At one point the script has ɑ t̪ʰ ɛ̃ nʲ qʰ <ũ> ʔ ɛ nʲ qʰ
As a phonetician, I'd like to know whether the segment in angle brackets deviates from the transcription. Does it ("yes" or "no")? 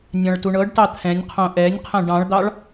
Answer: yes